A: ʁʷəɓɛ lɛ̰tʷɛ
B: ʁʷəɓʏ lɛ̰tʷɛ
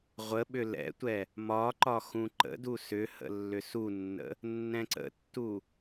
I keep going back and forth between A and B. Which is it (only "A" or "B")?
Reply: B